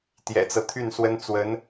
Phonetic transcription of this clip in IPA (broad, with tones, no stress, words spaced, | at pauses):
t̪jɛ̰˨˩t͡sɤ˦t̪ʰy˥˩nswə˥n t͡swə˧˥n